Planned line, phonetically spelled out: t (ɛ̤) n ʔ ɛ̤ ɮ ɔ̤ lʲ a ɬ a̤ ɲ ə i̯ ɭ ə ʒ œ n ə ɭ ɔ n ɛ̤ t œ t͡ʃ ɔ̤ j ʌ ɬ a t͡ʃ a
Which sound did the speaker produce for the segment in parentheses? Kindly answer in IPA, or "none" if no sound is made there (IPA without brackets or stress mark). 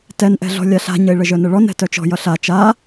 ɛ